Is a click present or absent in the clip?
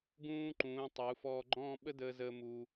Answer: present